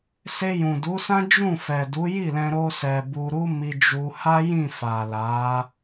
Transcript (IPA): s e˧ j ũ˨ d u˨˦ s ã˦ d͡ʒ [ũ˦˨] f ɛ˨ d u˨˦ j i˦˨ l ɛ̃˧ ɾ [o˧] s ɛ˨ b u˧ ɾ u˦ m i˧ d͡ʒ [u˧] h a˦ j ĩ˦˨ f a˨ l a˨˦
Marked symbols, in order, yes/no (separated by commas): yes, yes, yes